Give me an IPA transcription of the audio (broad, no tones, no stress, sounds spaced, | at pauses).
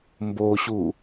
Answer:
m b o ɕ u